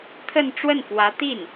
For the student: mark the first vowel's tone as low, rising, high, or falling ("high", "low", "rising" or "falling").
falling